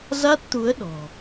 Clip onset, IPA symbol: z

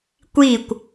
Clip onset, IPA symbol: kʷ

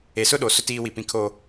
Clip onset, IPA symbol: e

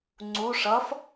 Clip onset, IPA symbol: ŋ͡ǀ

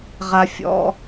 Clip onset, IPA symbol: ʁ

